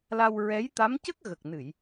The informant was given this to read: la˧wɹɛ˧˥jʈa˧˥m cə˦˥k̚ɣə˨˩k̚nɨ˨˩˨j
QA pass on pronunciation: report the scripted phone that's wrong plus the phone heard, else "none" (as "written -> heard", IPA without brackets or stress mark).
ʈ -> t̪